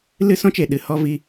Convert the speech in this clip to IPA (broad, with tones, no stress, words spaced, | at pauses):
lɨ˦sɔ̃˦t͡ʃe˨ ɗɨ˧ hɔ˦vi˦